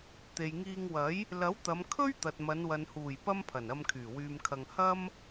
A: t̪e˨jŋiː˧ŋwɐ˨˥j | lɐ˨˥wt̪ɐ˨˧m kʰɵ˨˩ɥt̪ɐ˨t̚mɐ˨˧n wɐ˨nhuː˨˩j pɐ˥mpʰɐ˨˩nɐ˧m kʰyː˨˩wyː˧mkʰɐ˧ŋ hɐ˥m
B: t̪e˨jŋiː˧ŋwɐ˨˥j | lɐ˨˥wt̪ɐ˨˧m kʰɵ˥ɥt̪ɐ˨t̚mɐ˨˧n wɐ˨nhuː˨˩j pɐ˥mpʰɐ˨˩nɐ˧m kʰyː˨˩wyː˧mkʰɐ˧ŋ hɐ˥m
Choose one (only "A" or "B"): B